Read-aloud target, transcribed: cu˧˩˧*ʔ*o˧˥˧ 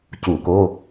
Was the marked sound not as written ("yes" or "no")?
yes